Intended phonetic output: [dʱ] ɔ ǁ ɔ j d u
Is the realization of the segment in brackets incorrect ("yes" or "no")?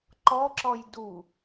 yes